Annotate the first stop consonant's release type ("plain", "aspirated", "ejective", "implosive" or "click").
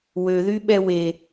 implosive